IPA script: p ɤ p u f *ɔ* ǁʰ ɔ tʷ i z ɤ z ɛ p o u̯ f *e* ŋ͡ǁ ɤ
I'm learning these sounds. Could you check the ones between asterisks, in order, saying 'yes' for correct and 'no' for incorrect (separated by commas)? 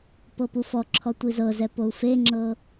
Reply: yes, yes